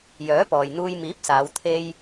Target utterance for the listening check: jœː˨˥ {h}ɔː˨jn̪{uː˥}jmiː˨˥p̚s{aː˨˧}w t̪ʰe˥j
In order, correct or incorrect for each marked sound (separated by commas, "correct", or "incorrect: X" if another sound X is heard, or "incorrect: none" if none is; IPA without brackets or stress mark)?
incorrect: p, incorrect: uː˧, correct